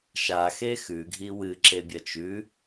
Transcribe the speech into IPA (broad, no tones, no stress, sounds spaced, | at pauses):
ʃ a x e x ʉ ɡʱ i w ɨ ǁ e bʲ ɐ t͡ʃ ʉ